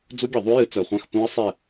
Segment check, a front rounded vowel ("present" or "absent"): present